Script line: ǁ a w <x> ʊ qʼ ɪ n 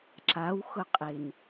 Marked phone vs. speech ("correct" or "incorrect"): correct